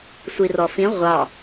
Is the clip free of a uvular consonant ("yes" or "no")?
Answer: no